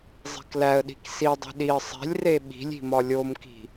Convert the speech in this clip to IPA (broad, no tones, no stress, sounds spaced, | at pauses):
zˤ e̤ k l æ ə̯ ɗ i̤ k s i dˤ e̤ ɗ i ə̯ sˤ e̤ lʲ r e ɓ i̤ lʲ i̤ m ɒ lʲ o m k i̤